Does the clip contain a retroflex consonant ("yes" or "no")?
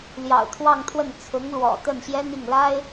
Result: no